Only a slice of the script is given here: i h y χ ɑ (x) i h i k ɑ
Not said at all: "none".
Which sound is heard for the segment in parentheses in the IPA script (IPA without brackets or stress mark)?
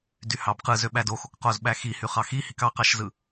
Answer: x